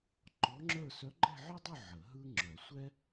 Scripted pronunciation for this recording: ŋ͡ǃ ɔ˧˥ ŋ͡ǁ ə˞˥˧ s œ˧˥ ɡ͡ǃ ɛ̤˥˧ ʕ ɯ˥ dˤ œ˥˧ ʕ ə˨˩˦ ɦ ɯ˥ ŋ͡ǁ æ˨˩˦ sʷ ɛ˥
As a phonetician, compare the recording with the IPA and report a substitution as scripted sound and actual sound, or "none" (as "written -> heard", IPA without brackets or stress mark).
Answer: æ˨˩˦ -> œ˨˩˦